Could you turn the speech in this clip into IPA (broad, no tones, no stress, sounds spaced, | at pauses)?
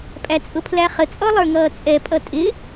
pʼ æ t͡sʼ ʊ pʰ l æ χ ə t͡sʼ ɔ lˠ ə˞ ŋ ʌː t͡sʼ ɛ pʼ ʌ tʼ ɪ